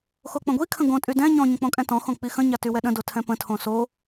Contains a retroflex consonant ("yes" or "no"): no